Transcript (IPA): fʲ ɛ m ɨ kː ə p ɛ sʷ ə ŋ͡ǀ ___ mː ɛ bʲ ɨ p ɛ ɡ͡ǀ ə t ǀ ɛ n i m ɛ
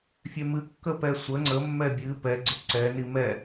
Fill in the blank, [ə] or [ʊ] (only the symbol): ə